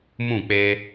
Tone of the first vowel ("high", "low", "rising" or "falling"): falling